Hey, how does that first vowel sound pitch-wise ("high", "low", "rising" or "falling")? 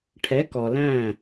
rising